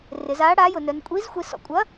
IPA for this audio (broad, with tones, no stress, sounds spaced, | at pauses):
r ɪ˩˧ z aː˨˥ ɽ aː˨˥ j ʊ˩˧ n œ˩˧ n kʷʼ i˨˥ z xʷ i˩˧ s ɔ̰˩˧ kʷʼ ɐ˨˥